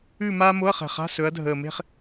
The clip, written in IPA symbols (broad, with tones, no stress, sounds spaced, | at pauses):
ʉ˥˧ m aː˥ m o˧˥˧ ɐ̯ χ ɛ̤˨˩ χ a̤˧˥˧ s ɵ˨˦ ɐ̯ dʱ əː˨˩ m e̤˥˧ χ